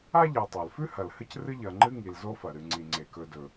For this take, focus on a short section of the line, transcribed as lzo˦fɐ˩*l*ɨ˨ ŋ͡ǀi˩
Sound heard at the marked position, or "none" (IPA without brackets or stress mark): ɾ